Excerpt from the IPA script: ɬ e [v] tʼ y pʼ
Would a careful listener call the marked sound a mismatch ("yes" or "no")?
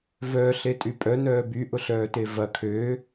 yes